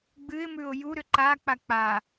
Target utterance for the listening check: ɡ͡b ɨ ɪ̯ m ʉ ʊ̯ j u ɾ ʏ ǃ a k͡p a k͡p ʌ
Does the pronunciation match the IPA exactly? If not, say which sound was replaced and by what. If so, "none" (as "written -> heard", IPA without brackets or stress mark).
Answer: ʌ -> a